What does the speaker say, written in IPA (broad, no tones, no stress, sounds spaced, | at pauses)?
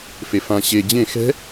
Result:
f e f ã ɕ e d͡ʑ ẽ x ɛ̤